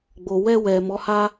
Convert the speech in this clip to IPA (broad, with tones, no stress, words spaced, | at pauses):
ɡ͡bo˨wɛ˧ wɛ˨ mɔ˨˦ha˦